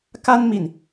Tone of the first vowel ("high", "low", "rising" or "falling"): high